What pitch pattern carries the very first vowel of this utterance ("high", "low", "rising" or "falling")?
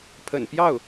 low